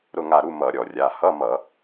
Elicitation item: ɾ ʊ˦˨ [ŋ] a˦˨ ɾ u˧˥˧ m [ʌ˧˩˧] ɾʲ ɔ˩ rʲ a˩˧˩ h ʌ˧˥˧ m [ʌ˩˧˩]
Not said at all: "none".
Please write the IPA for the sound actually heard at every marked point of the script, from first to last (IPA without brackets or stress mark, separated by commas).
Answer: ŋ, ʌ˧˩˧, ʌ˧˩˧